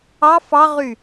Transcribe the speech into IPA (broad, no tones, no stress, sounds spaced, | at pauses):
ɑ f ɑ ʁ y